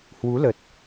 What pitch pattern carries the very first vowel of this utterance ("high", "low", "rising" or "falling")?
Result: rising